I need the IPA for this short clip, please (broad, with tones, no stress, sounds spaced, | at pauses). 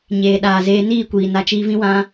ɲ eː˨ ɗ aː˨ z eː˧ n iː˦˨ kʷ iː˨ n a˧ t͡ʃ iː˧ v ĩ˦ w ã˦